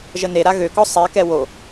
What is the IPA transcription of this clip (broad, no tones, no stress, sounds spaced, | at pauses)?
ʒ ə n e ɾ a ɣ ø k ɔ sˤ ɛ k ɛ w o